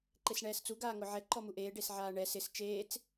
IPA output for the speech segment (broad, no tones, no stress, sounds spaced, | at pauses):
ǃ e s ɳ ɛː s t͡s u ɡ aː ŋ ʊ ʕ ɛ ǃ ɔ m u ʔ eː ɖ e s ʕ aː ɳ ɛ s ɪ s t͡ʃ eː t͡s